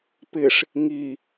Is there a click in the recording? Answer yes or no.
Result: no